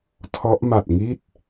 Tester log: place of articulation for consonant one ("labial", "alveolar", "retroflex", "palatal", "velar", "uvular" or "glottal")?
alveolar